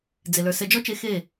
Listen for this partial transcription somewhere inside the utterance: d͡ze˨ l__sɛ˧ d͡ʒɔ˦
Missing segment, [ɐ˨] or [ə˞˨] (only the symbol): ə˞˨